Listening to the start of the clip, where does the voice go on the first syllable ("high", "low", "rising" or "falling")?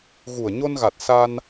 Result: low